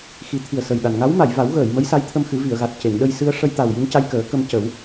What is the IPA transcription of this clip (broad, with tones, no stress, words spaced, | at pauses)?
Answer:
xi˨˩˦ t̪ʰi˨˩ə̯sə˨˩jɗa˨˩n ŋa˧˥wma˨˩˨jva˨˩˦wɣəː˨˩˨j mə˧˥jsa˧˥jt̪ʰə˧m xɨ˨˩˦vi˨˩˨ə̯ɣa˨˩t̚ ce˨˩˨ŋɗə˧jsɨ˧ə̯ ʂə˧jt̪a˨˩wji˧nca˧j kəː˨˩˦kə˧m cə˨˩˦w